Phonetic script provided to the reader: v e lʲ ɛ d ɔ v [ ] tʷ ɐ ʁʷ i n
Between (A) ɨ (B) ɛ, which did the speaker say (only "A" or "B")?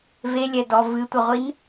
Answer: A